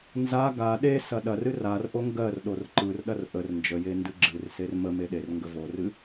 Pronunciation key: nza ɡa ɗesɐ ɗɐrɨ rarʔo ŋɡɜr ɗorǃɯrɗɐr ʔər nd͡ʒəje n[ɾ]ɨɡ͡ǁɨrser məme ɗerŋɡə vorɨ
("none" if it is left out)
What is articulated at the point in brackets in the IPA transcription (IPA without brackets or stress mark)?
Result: d